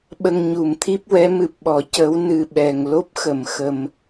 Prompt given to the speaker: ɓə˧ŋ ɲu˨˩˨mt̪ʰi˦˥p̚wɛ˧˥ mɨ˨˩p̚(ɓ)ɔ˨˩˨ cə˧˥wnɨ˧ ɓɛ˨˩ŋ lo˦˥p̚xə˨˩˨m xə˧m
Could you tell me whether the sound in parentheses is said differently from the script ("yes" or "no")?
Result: no